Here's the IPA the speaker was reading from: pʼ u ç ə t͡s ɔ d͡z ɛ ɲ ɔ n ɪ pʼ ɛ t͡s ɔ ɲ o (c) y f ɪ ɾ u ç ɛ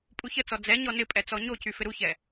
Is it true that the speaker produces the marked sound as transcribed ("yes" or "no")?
yes